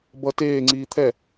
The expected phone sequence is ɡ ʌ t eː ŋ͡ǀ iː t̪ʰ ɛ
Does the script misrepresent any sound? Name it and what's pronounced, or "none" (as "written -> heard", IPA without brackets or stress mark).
ɡ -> b